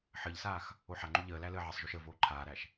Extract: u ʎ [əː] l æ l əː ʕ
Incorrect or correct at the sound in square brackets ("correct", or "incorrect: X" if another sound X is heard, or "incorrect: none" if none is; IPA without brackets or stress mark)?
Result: correct